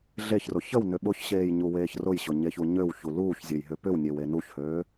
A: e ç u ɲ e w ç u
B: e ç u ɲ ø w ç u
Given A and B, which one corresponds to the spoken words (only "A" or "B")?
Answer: B